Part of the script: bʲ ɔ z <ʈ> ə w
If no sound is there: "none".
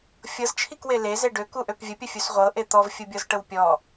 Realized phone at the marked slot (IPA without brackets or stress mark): ʈ